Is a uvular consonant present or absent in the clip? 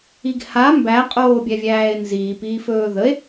present